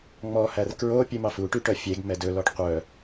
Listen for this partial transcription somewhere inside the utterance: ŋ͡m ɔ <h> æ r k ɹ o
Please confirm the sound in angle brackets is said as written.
yes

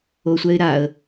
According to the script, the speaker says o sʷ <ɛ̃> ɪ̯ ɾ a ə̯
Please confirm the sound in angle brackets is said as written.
no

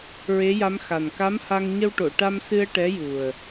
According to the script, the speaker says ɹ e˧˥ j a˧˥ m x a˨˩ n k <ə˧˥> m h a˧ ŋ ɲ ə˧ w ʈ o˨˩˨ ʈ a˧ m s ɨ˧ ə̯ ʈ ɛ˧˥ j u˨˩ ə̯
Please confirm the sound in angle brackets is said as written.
no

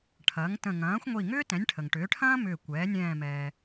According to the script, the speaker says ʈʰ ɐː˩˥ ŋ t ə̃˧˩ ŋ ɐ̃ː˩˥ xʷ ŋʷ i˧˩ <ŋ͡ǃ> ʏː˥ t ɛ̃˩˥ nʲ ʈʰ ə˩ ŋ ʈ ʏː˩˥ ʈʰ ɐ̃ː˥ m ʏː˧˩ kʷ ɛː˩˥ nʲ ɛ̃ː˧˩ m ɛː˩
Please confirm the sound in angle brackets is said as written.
no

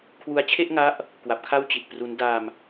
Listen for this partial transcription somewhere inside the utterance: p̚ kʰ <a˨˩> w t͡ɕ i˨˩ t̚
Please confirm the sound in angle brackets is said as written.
no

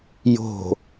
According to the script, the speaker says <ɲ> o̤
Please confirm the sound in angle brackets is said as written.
no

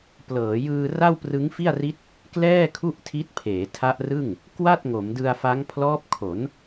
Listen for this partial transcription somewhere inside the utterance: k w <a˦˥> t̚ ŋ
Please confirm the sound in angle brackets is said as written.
no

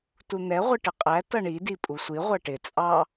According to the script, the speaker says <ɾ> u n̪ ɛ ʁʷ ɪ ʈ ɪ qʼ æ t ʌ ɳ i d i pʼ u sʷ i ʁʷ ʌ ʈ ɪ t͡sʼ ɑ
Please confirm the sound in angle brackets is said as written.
no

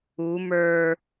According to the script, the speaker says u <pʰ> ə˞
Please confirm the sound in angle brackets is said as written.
no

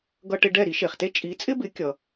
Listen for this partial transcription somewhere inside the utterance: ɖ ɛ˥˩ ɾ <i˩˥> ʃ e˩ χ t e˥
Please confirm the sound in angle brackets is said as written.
yes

